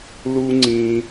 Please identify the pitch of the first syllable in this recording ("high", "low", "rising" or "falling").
high